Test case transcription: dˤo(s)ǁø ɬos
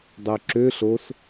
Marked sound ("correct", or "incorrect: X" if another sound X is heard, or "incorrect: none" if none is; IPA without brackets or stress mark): incorrect: none